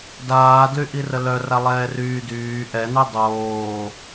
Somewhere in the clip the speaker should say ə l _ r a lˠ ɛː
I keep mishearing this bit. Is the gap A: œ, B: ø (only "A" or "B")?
A